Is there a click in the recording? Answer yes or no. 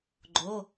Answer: yes